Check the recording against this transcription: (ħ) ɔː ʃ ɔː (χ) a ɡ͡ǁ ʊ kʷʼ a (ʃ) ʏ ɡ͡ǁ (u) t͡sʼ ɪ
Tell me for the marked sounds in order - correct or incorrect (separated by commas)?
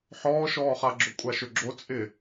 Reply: correct, correct, correct, incorrect